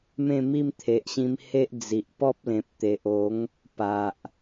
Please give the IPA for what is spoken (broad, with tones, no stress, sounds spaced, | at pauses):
m ẽ˥˧ m i˥˧ m t̪ʰ e˨ ʔ ɕ ĩ˧ m h e˦ ʔ d͡z i˨ ʔ p ɔ˦ p̚ l ẽ˨ p̚ t̪ e˨ ʔ o˨˦ ŋ | p a˨ ʔ